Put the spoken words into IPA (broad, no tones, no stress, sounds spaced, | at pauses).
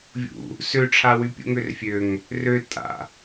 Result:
vʲ ṵ | s ø ʈ͡ʂʰ a w y pʲ ṵ ŋ ø r fʲ ø ŋ | r ø tʼ a̰